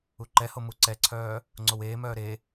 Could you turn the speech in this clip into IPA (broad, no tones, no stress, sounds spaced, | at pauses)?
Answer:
u ǃ ɛ h o m u ǀ ɛ ǀʰ œː | ŋ͡ǀ o w eː m œː ɾ e